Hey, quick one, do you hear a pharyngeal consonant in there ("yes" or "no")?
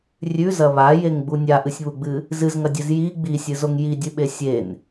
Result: no